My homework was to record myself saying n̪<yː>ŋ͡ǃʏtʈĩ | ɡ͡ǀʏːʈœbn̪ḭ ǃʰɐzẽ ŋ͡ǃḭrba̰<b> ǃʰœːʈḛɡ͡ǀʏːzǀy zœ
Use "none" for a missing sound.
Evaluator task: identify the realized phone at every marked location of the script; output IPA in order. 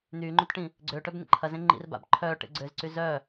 yː, b

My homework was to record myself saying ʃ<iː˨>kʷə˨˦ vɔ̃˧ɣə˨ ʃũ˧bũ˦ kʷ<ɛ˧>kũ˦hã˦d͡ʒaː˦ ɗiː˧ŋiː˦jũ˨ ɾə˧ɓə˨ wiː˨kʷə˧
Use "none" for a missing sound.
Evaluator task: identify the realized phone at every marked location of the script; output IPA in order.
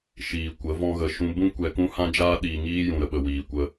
iː˨, ɛ˧

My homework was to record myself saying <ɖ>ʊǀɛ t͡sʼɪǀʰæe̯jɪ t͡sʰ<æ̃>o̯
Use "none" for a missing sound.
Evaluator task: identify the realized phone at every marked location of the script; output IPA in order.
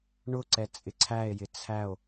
ɳ, æ

